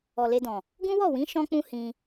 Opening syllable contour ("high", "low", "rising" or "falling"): low